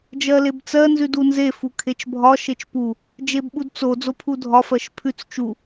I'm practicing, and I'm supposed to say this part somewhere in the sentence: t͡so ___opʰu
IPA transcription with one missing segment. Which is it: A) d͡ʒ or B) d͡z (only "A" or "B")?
B